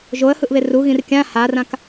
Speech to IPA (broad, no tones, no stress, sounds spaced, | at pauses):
ʒ o ə̯ h ɯ ʔ β e r u ɣ ĩ r kʲ ã h a r ã k